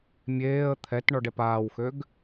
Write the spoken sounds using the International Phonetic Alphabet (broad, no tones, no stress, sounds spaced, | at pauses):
mʲ eː ə̯ t̪ʰ ɛ t ɳ ɔ ɖ ɛ p aː w x ø ɡ